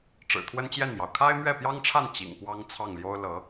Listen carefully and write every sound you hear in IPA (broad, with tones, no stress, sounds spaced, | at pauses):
ʈ͡ʂ ɻ̩˨˩ t̪ʰ w ə˥ n t͡ɕ j ɛ˥˩ n m j ɑ˩ ʊ̯ kʰ a˥ ɪ̯ m ɥ ɛ˥˩ p j ɑ˥ ŋ ʈ͡ʂʰ a˥˩ n t͡ɕ ḭ˨˩ ŋ p w ɑ˥ ŋ t͡sʰ ɑ˥˩ ŋ l j o˥ ʊ̯ l ɤ˧˥